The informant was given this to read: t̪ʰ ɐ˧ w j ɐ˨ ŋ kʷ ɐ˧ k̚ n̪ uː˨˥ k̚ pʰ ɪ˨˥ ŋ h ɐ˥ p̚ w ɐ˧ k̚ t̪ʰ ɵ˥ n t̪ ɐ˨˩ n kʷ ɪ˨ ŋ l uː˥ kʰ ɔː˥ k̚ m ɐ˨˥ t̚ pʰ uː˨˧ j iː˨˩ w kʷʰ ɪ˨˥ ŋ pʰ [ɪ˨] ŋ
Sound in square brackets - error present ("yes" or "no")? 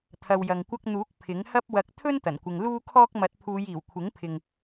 no